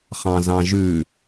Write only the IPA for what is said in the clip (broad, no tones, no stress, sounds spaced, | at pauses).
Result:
χ ɑ̃ z ɑ̃ ʒ ʉ